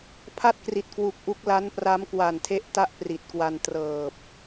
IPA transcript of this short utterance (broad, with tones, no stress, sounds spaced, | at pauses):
pʰ a˥˩ t̚ k r i˨˩ t̚ k w u˨˩ k̚ ʔ u˦˥ k̚ l a˦˥ n p r a˦˥ m k w a˨˩ n tʰ e˦˥ ʔ t a˥˩ ʔ p r i˨˩ t̚ k w a˧ n t r ɤː˨˩ p̚